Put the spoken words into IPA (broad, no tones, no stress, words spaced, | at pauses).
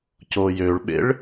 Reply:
cojøɭɓḛɭ